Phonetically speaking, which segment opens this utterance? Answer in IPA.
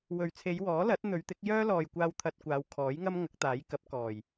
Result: w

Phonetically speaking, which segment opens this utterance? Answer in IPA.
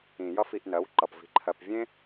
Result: ĩ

